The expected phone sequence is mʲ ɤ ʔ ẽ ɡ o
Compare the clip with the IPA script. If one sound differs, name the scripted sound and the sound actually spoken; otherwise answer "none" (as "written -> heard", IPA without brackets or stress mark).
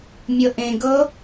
o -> ɤ